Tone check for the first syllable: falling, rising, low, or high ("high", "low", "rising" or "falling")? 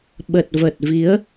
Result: low